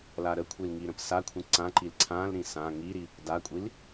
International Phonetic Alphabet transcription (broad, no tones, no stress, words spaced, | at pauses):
laɾəkʷʰil ŋiɾə̃psakʷʰĩ ǀãǃil ǀʰãlɾĩ sã ŋiɾi | dakʷʼil